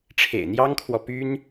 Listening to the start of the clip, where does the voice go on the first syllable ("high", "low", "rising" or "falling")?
low